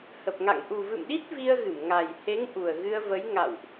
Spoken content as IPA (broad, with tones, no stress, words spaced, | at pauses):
hə˨˩p̚ŋa̰˧˨ŋ ʔu˨˩vɨ̰˧˨mɗi˦˥t̚ vi˧ə̯ɣɨ˧˩m ŋa˨˩jhe˨˦ŋ ʔu˨˩ə̯ɣɨ˧ə̯və˨˦j ŋa̰˧˨wʔ